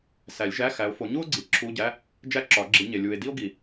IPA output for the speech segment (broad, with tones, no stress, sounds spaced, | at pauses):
s æ˨˩˦ lʲ ʒ æ˧˥˧ x æ˨˦ o̯ f o˨˦ ɲ u˥ o̯ ɡ͡ǀ i˨ ǁʰ u˧˥˧ ɟ æ˧˥˧ | d͡ʒ æ˥ ǁ ɒ˨˩˦ ɡ͡ǁ i˨˦ ɲ e˨ lʲ u˨ e̯ d i˥ o̯ ɡ i˨˩˦